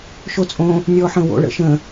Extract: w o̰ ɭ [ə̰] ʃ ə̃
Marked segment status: correct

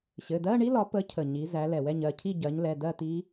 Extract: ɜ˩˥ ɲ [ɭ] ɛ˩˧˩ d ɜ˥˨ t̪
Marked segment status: incorrect: l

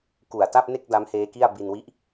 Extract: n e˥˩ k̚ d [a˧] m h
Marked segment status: incorrect: a˦˥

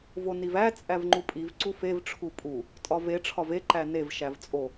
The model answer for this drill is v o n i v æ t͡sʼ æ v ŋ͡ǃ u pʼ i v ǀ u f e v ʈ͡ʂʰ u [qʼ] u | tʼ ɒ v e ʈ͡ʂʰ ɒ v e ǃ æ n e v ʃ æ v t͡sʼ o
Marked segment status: incorrect: pʼ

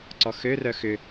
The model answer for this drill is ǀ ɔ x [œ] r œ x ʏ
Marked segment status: incorrect: ø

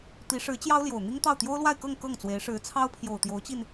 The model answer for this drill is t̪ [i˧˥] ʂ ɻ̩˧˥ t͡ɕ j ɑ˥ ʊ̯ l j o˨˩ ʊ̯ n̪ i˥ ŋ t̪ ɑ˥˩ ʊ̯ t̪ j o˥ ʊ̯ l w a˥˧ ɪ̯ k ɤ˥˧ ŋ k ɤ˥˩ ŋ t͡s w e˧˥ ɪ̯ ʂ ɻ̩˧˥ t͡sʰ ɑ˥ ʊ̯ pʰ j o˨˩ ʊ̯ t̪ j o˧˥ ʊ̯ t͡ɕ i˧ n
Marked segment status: correct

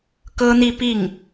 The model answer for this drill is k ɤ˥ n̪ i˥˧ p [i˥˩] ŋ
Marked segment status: correct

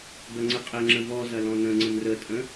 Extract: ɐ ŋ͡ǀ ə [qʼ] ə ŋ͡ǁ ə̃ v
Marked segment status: correct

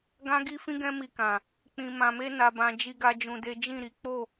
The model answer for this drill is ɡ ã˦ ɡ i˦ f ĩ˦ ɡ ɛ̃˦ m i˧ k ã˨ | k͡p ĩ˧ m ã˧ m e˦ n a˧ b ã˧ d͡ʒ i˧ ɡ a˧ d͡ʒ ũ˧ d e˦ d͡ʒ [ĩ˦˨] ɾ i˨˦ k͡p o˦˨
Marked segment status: correct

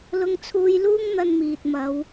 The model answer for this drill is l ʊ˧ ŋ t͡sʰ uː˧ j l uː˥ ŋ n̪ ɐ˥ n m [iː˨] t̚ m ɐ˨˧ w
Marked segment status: correct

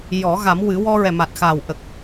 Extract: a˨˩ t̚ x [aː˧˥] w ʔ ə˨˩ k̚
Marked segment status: incorrect: aː˨˩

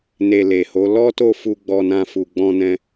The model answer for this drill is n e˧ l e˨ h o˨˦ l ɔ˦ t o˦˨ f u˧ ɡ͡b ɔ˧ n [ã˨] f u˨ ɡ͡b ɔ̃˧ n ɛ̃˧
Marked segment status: incorrect: ã˧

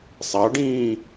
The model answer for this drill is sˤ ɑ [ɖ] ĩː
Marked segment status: correct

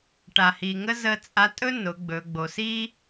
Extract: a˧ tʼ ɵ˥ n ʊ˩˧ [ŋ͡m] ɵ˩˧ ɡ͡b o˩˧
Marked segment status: incorrect: ɡ͡b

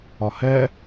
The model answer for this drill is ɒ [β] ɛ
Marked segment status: incorrect: h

